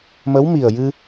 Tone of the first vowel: rising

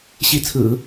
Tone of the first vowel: rising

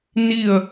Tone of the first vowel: falling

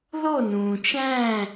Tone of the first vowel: falling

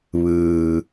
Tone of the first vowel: low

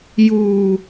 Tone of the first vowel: low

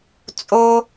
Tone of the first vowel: high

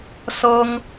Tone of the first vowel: high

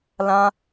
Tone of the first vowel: high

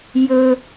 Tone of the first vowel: high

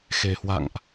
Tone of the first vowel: low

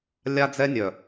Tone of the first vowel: high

